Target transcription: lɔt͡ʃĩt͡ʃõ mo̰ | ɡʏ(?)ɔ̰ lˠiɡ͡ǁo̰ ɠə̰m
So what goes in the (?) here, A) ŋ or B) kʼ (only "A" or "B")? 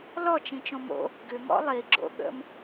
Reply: A